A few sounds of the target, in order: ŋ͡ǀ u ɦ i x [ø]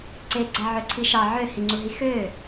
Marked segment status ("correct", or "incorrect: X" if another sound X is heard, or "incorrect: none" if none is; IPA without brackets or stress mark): correct